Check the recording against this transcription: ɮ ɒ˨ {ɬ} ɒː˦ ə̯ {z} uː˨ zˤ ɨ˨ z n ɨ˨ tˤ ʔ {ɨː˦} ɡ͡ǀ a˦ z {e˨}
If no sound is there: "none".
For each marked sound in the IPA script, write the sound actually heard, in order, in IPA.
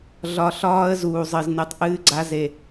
ɬ, z, ɨː˦, e˨

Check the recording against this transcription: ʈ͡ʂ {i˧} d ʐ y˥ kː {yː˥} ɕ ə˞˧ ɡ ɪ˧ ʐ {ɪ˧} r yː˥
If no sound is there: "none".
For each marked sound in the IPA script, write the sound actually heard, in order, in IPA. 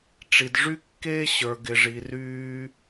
i˧, eː˥, i˧

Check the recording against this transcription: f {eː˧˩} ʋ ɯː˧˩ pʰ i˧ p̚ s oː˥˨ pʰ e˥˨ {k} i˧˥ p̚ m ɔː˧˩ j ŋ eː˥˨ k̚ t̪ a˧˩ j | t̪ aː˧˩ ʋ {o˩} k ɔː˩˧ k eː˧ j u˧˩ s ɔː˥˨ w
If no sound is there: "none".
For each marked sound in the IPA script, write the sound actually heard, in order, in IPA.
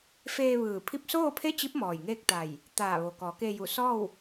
eː˧, t͡ɕ, o˩

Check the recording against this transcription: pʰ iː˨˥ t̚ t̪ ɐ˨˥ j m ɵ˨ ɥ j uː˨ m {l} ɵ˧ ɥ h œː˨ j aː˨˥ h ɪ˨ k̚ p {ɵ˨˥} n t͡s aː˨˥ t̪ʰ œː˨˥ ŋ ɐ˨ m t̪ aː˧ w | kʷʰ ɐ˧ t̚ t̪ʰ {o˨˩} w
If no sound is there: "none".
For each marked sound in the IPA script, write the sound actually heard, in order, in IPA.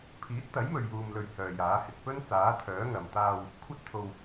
l, ɵ˥, o˨

